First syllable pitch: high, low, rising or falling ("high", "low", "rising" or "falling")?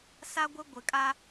high